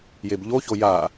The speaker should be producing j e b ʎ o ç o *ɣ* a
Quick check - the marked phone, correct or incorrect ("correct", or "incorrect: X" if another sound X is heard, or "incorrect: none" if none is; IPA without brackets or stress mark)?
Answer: incorrect: j